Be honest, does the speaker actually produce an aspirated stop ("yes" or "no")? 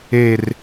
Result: no